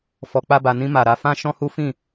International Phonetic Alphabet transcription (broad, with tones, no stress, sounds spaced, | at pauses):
f ɔ˧ k͡p a˦ b a˧ n ĩ˧ m a˨ ɾ a˧ f ã˦ ʃ ɔ̃˦ h u˦ f ĩ˦˨